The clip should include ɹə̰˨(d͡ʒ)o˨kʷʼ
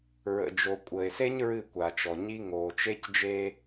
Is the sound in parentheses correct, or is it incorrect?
correct